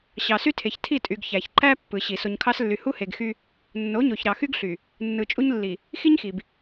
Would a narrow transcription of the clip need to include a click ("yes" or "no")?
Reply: yes